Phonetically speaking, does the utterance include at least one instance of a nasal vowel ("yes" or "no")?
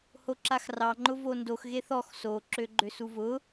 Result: no